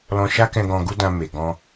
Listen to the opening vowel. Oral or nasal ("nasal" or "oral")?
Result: nasal